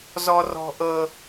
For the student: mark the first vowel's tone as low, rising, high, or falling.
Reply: high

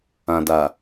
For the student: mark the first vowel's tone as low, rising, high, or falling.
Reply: low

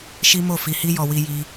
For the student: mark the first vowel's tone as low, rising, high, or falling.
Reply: high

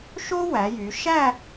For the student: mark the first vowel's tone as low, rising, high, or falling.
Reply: high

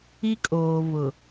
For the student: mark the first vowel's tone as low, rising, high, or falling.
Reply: high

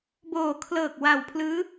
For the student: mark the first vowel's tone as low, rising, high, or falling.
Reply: low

